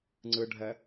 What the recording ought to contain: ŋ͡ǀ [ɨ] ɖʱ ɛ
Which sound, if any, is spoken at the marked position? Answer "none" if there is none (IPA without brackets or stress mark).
ɨ